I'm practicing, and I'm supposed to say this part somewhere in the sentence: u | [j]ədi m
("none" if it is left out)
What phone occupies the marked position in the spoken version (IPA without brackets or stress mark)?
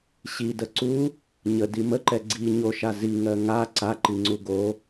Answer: ɲ